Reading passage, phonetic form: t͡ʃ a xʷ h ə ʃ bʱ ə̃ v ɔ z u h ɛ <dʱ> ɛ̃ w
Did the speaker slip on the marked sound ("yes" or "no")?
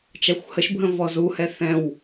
yes